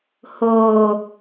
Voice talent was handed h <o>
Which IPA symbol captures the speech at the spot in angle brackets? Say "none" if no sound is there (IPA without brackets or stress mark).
o